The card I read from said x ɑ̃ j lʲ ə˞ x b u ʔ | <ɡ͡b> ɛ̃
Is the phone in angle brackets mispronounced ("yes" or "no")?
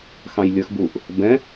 yes